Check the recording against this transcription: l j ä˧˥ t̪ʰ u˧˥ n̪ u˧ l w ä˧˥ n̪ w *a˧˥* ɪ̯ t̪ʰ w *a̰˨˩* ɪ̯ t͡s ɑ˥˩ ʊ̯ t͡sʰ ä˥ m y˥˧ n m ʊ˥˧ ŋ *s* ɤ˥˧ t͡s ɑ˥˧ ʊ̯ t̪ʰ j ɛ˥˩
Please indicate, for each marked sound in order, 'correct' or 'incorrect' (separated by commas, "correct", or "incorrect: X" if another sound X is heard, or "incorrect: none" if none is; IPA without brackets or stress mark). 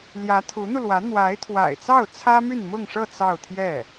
correct, correct, incorrect: ʂ